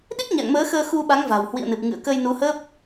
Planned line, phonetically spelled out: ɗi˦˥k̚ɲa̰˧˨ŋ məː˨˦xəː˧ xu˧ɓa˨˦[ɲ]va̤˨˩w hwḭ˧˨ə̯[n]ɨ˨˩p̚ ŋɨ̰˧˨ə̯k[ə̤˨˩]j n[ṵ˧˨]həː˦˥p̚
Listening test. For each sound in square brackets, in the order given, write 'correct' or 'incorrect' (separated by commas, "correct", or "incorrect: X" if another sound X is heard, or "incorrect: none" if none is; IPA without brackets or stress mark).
incorrect: ŋ, correct, incorrect: ə˧, incorrect: u˨˦